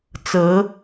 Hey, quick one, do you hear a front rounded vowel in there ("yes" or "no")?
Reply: no